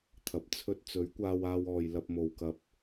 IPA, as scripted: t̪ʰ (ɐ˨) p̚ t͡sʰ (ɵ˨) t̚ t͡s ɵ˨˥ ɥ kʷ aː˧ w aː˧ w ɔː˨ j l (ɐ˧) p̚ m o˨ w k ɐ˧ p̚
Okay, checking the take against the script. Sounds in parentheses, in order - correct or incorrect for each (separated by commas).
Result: correct, incorrect, correct